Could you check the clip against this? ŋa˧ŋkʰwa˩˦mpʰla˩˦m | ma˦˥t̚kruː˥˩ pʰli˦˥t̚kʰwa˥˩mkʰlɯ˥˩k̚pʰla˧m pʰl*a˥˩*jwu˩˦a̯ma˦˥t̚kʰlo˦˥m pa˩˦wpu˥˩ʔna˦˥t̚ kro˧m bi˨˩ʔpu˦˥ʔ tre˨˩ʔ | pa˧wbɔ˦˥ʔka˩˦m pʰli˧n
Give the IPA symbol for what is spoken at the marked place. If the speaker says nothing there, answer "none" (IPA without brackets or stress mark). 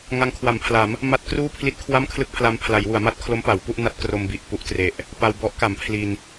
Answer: a˩˦